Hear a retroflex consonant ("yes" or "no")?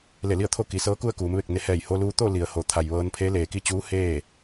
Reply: no